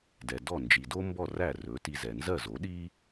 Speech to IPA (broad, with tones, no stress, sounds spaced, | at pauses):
d ɛ˩ d ɔ˥˩ n d͡ʒ i˩ d o˥ m b ɔ˥˩ r æ˥˩ r ɵ˩˥ t i˧ z ɛ˩ n z ɜ˥˩ z o˩˥ ɗ i˥